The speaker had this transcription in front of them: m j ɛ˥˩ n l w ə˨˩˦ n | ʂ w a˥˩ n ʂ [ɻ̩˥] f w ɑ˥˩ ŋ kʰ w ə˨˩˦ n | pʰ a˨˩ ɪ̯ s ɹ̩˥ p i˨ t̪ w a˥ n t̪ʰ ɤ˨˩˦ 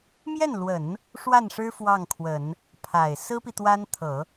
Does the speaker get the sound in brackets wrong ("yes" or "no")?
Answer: no